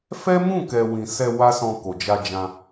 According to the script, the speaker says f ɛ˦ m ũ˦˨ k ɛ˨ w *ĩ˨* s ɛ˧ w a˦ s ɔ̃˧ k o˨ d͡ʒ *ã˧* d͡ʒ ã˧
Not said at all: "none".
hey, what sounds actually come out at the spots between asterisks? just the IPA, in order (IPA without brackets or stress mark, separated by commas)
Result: ĩ˨, a˧